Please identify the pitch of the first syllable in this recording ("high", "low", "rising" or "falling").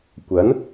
rising